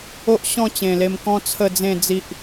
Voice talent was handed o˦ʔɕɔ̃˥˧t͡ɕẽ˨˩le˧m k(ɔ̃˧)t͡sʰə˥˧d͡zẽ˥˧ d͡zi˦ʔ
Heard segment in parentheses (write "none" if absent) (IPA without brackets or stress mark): ɔ̃˦